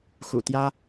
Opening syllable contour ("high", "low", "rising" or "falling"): low